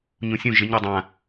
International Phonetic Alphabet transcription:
ɲ ũ sʲ ũ ʒ ɪ ɲ a dˤ ã

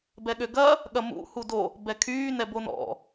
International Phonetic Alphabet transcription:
b ɛ ɠ ø ɡ ɐ | ɠ ɐ m ṵ h u d o | b ɛ kʰ yː n ɛ b o n ɔ̰

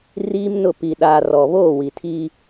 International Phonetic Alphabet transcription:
r iː˦ m n ʊ˦˨ p i˨ ɗ aː˨ r ɔ˨ β oː˦˨ w i˨ tʰ iː˦

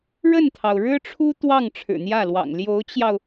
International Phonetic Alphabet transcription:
ɻ ə˥˩ n t̪ʰ ɑ˩ ʊ̯ ɻ ɻ̩˥ ʈ͡ʂʰ u˥ t̪ w ɑ˥˩ ŋ ʈ͡ʂʰ ɻ̩˨˩ n̪ j ä˥˩ l w ɑ̰˨˩ ŋ l j o˧˥ ʊ̯ t͡ɕ j ɑ˧ ʊ̯

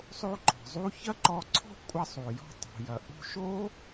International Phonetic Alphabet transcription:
sˤ o˧ ǃ ɔ̤˩ zˤ u˧ ç ɐ˥ ǃ ɔ˧ ǀʰ ɔ̤˥ kʷʼ ɐ˧ sˤ u˩ j ɔ̤˧ tˤ o̤˩ j ɐ˩ ʔ ṳ˧ ʃ o˥

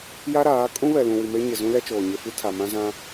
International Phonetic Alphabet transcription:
j a˦ ɾ aː˨˦ kʼ ũ˦ β ɛ˨ l ũ˨ w i˨ m e˦ ɲ ɪ˨ z ũ˦ l ɛ˦ t͡ʃ oː˨ ɲ e˨ f i˦ tʰ a˨ m ã˦ z ã˦

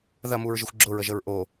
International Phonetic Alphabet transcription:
ð ɐ m u ɹ ʒ ɨ xʷ ɡ͡ǁ ʊ ɹ ə ʒ ə ɹ ʔ o

